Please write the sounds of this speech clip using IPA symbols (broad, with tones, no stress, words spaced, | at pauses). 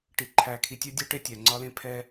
ʈi˨ ǃʰæ˨kʰi˨tʲœ˦dʲa˦ ʈe˦tʲæ˨ŋ͡ǀɒ˦lẽ˦ pʰɛ˦